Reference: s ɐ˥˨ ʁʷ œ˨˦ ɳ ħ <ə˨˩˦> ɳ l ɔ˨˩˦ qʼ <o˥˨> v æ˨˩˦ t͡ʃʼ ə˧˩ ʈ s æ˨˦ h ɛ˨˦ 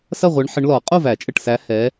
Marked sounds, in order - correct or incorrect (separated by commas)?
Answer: incorrect, correct